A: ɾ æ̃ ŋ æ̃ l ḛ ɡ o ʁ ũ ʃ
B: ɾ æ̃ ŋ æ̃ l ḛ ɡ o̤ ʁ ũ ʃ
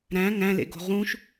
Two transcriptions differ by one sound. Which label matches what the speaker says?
B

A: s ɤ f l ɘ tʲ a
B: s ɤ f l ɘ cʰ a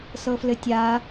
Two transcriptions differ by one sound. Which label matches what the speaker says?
A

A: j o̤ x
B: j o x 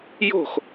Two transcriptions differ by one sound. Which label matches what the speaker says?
A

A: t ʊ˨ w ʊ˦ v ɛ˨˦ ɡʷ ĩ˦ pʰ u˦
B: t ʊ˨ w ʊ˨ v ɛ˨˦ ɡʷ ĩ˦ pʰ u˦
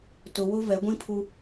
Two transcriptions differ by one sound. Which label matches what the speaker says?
A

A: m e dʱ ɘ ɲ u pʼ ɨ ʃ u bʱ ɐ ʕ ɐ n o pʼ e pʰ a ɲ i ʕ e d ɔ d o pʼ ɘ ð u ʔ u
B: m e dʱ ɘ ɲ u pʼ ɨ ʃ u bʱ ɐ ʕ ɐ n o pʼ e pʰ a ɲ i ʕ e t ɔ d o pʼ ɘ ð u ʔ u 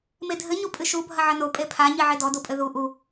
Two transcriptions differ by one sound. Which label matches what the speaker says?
A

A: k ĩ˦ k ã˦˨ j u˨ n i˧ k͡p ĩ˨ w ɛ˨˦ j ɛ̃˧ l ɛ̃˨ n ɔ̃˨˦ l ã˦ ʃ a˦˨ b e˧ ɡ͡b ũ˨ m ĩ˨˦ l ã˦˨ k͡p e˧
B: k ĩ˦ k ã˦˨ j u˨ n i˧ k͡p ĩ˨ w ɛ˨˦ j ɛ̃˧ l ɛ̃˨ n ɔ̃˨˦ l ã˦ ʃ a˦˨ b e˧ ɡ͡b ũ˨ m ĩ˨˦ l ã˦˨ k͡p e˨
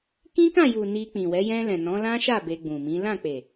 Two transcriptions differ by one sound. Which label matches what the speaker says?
B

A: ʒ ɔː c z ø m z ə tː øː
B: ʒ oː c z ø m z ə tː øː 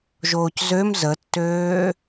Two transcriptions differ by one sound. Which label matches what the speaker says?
B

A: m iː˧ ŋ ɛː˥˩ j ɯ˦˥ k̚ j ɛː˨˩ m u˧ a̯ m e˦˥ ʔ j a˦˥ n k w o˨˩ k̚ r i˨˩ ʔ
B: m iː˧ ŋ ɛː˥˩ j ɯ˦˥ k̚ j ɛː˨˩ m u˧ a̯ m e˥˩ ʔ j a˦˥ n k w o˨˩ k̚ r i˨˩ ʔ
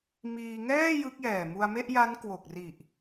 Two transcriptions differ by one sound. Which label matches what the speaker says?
B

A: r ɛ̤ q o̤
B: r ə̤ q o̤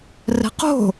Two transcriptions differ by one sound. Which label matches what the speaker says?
A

